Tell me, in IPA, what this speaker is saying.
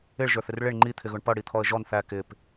ɪ ɭ ʒ ə˞ θ ɪ r ɭ ɪ ɳ ŋ͡ǃ i t̪ʰ ɪ ɣ ʊ ɳ p ʌ ɽ i t̪ʰ ɔ ə̯ ʒ ɔ n θ æ k ɪ p

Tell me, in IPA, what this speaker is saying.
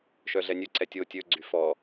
ʃ œ ɮ ɛ nʲ ɵ ǀ ɛ tʲ o tʲ ɵ ɡ͡ǀ y f ɔ

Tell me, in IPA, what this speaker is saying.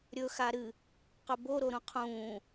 ɾʲ ɵ x a ɾ ɨ | q ɵ b o ɾ o ɾ ũ qʰ ũː

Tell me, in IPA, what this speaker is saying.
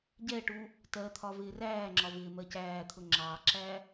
ɟ ɛ ʈ u | t ɜ t̪ʰ ɒ v ɪː r æː ŋ͡ǁ ɒ v ɪː m ɜ c æː t̪ʰ ʊ ŋ͡ǁ ɑ ǁ æ

